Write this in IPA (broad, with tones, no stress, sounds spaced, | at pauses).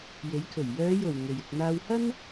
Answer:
j e˨˥ j kʰ ɵ˨˩ ɥ j œː˨˧ j o˨˩ w ŋ e˨ j ɪ˧ k̚ n̪ aː˥ w h ɐ˥ n